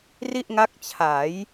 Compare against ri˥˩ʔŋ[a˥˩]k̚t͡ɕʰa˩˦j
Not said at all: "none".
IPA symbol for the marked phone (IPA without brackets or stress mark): a˦˥